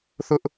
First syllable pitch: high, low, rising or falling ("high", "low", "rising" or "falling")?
high